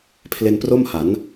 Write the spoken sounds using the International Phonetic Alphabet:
pʰ l e˧ n p r o˥˩ m h a˩˦ n

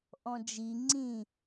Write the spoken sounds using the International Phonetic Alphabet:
ʔ ɔ̃ d͡ʒ i ŋ͡ǀ ĩ

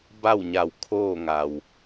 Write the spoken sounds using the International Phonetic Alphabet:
b a˥˨ w ɲ a˧˩ w kʰ oː˥˨ ŋ a˩ w

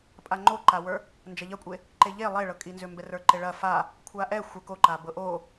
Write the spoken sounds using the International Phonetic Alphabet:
pʼ a ŋ͡ǃ o ǃ a w ə˞ | n d͡ʒ ɐ ʎ ɐ kʷʼ e | ǃ e ʎ e lˠ e ɭ ɤ kʼ i n z ʏ m b ɛ r ə˞ ǃ e ɭ ɐ f a | kʷʰ a ʔ ɛ xʷ ə k o ǃ a b ɤ ʔ o

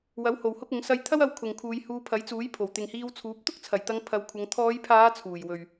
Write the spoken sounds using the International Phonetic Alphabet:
w ɐ˨˥ w h o˨ w h ʊ˥ k̚ ʊ˨˥ ŋ s ɐ˧ j t̪ʰ ɐ˥ w ɐ˧ w kʰ ʊ˨ ŋ kʰ uː˨˧ j h uː˧ pʰ ɐ˨˥ j t͡s uː˨˥ j pʰ o˨˩ w t̪ ɪ˨ ŋ h iː˧ w t͡sʰ uː˨˥ p̚ t̪ ʊ˥ k̚ t͡sʰ ɐ˨˩ j t̪ ɐ˨˧ ŋ pʰ ɐ˨˧ w kʷʰ ɐ˨˧ ŋ t̪ʰ ɔː˨˧ j pʰ aː˨˧ t͡sʰ uː˨˩ j w ɵ˨ ɥ

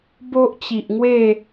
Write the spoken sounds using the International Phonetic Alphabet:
b o˦ ʔ t͡ɕ i˨ ʔ ŋ w e˥˧

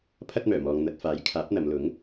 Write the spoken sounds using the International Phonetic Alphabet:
pʰ ɐ˥ t̚ m œː˨˩ m ɔː˨ ŋ n̪ ɐ˧ t̚ f aː˨˥ j kʰ aː˨˥ p̚ n̪ ɐ˨˧ m l ʊ˨˥ ŋ

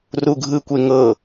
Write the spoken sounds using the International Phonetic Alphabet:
r u ɡʱ ɯ kʷ e ŋ ɤ

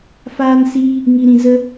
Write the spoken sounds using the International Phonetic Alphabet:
f aː˦ n s iː˦ | ŋ i˧ ɾ ĩ˧ z ə˦

